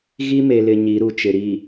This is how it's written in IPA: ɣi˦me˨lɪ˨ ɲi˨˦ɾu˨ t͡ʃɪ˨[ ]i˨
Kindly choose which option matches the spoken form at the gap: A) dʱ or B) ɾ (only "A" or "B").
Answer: B